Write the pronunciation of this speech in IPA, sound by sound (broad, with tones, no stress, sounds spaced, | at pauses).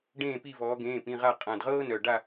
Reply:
ɖ ẽː˦˨ p i˦˨ v ɔː˧˥ ɡ ẽː˧˥˧ p ĩ˧˥˧ ʁ a˦˨ qʼ ã˨˩ d ʁ ɤː˥ n œ˨˩ ɖ a˦˨